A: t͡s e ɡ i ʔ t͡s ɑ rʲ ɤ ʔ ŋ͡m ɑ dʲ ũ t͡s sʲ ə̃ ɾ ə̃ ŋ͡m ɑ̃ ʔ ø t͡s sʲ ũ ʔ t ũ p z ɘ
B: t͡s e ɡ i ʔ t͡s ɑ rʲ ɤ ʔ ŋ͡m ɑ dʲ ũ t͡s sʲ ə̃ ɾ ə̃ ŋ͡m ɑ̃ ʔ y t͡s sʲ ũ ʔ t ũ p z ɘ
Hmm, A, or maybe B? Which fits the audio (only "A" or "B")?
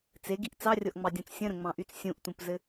B